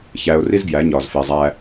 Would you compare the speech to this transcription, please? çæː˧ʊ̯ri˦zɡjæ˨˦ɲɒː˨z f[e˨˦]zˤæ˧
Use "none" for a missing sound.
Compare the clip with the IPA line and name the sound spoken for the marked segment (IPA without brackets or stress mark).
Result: e˨